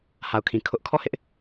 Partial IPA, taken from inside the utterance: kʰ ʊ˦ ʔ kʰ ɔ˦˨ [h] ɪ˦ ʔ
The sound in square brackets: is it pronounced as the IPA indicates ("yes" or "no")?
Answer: yes